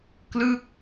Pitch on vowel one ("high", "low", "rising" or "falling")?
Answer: falling